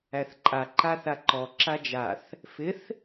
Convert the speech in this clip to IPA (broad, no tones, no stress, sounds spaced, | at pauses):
æ θ ǃʼ a ǃ a θ a ǃ ɔ ǁ a d͡ʒ a θ | f ɪ θ